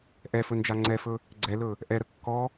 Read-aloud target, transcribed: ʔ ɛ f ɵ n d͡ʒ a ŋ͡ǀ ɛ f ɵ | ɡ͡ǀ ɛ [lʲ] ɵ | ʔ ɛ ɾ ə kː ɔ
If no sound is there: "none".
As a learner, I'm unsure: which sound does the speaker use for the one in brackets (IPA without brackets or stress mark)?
l